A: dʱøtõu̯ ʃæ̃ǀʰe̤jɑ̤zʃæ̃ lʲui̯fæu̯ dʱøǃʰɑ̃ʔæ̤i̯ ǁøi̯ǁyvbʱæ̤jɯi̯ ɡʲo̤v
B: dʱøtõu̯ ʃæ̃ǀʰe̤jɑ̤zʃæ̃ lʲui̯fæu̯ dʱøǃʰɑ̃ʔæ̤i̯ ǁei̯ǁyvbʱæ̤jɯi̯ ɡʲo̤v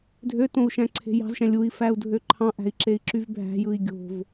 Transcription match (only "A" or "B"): B